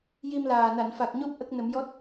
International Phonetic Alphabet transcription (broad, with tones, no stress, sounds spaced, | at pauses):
j i˧ m l aː˨˩ n a˨˩˨ n f a˨˩ k̚ ɲ o˦˥ p̚ ʔ ə˦˥ k̚ n ə˨˩˦ m j ɔ˦˥ t̚